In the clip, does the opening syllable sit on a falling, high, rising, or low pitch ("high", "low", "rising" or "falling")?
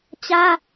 high